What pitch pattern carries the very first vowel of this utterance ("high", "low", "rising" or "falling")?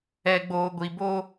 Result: low